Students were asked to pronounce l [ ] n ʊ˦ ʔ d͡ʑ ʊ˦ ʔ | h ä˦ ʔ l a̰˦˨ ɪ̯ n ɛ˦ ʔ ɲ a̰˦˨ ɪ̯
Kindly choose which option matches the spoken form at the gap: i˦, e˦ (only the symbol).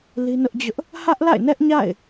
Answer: i˦